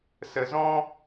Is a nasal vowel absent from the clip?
no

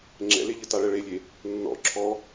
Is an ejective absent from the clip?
yes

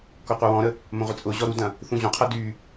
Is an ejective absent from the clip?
no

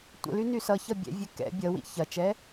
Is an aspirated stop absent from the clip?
yes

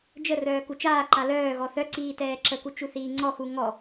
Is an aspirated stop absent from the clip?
yes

